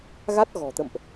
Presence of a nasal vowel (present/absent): absent